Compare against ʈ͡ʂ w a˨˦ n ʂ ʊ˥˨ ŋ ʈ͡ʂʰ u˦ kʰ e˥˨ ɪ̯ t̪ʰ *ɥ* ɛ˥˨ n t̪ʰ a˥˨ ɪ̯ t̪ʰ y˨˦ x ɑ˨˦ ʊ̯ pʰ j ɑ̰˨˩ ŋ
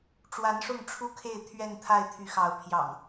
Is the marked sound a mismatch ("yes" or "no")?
no